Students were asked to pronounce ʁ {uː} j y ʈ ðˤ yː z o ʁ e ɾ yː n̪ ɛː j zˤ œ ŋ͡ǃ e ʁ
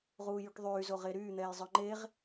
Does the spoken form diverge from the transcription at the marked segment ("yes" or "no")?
no